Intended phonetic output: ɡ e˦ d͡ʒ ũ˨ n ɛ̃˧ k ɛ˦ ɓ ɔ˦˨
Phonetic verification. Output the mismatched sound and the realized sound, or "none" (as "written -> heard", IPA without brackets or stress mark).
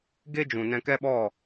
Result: none